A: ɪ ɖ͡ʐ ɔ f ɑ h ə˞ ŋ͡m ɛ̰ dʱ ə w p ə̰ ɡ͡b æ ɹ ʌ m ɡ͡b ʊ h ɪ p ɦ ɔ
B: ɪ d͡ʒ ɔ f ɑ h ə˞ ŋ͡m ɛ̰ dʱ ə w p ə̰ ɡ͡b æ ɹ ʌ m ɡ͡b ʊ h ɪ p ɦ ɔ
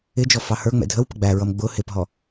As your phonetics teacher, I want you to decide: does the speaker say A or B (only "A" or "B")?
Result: B